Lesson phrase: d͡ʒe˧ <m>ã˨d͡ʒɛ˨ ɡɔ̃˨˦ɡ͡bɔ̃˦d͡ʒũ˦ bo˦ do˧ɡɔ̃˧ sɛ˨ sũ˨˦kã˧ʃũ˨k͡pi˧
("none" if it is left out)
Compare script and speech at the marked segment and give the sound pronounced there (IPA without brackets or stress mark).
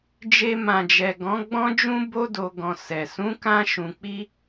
m